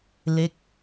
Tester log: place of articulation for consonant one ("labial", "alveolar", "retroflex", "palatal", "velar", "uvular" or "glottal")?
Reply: alveolar